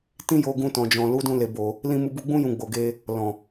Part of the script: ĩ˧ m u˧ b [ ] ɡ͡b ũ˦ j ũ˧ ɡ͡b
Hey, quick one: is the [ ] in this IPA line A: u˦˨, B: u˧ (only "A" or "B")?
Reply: B